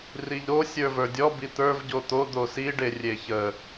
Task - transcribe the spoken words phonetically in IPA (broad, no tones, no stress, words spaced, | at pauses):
riʎɾo sʲə˞və˞dʲɔ bit̪ə˞v ɟot̪o d̪osi ɖerʲeçə